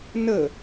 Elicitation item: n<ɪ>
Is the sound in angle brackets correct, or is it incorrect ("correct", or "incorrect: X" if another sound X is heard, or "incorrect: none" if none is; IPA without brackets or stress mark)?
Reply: incorrect: ə